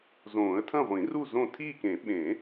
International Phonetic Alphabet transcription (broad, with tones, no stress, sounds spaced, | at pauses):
z õː˨˩˦ ə̯ tʰ ɐ̃˥˨ ʁʷ ĩ˨˩˦ r u˥˨ z õ˥˨ tʰ iː˥˨ k ẽ˨˩˦ ɓ ẽ˨˩˦